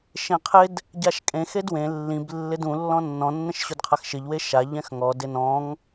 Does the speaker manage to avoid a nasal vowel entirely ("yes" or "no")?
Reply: no